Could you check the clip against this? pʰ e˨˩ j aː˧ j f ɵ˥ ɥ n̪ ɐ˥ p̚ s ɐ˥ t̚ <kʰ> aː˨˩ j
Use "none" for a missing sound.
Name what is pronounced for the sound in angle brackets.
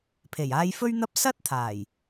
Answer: t̪ʰ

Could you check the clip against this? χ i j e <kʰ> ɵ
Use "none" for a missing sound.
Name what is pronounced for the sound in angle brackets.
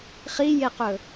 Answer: q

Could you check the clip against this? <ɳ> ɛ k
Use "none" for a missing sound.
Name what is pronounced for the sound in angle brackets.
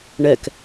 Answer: ɳ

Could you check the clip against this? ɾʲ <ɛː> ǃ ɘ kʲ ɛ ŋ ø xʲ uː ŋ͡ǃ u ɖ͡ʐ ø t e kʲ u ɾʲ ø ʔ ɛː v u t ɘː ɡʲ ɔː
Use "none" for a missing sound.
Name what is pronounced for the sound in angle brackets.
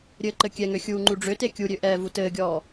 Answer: ɘː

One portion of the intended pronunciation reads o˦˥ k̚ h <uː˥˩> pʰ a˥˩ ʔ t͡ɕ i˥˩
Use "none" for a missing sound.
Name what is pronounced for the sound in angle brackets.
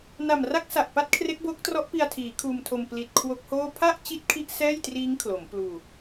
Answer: oː˥˩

